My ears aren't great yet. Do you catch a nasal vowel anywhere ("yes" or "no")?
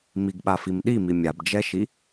no